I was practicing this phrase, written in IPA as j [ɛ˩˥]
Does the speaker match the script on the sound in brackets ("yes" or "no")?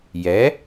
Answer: yes